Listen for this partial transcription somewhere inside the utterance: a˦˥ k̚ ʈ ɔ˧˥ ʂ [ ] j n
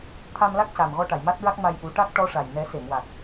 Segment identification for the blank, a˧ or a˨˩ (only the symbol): a˨˩